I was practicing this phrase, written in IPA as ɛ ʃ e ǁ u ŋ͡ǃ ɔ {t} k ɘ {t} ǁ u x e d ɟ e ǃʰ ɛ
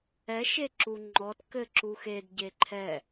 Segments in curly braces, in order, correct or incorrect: correct, incorrect: none

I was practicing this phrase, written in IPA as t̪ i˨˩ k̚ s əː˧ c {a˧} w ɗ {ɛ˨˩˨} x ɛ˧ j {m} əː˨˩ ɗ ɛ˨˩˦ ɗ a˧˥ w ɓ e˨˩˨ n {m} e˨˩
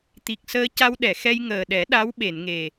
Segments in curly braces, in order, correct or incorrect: correct, correct, incorrect: ŋ, incorrect: ŋ

